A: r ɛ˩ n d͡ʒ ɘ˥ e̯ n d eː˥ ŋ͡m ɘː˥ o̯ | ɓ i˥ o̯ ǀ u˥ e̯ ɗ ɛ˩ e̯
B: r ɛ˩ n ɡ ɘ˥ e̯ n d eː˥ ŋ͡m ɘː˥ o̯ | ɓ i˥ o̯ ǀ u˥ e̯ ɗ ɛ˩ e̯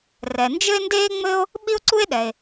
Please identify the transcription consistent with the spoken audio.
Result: A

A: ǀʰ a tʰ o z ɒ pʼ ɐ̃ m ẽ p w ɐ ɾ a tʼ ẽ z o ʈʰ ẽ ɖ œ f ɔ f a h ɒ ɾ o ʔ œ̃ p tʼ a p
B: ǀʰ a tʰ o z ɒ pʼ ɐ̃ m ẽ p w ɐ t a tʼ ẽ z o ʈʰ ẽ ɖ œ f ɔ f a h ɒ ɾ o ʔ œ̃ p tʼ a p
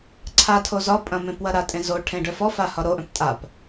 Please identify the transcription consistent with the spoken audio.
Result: A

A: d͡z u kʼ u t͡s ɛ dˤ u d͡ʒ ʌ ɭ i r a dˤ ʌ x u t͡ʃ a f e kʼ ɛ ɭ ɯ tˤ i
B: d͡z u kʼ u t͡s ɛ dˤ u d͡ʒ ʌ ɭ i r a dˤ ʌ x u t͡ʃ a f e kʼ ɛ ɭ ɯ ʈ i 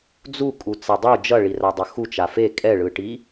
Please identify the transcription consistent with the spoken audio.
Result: B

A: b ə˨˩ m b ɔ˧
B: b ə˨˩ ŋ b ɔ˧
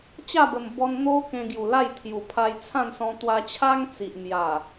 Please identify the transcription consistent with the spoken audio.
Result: A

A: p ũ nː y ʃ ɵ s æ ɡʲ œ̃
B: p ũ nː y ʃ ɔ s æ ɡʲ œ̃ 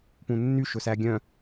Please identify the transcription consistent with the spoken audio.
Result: A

